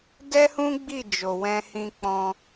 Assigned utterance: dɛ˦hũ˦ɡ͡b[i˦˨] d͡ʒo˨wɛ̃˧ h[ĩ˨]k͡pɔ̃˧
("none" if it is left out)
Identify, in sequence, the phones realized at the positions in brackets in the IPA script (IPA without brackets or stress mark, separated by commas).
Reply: i˦˨, ĩ˧